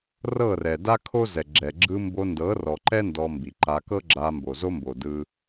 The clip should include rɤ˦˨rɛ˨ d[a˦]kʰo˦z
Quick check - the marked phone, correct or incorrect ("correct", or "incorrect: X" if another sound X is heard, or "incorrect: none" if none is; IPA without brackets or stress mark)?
correct